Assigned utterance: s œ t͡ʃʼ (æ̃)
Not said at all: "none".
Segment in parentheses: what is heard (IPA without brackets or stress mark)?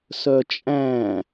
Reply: æ̃